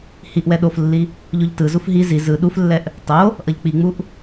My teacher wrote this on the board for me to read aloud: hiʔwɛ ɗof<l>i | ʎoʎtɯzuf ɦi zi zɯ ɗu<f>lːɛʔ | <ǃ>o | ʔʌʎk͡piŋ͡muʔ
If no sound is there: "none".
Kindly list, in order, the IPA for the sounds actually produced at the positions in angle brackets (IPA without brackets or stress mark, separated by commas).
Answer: lː, f, tˤ